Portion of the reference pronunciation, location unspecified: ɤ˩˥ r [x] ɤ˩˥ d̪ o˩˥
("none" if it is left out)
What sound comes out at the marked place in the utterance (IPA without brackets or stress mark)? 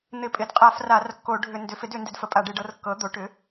kː